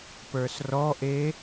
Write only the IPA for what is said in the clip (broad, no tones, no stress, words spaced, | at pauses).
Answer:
pə˞srɔʔe